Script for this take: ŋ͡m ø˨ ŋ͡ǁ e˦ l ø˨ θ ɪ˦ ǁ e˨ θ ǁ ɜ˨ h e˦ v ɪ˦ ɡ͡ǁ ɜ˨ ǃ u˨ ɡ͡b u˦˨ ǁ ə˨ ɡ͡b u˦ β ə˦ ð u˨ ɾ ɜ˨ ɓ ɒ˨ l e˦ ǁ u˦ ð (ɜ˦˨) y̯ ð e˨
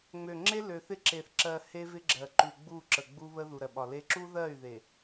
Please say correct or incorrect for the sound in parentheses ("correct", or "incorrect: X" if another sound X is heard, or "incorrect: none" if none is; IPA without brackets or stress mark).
correct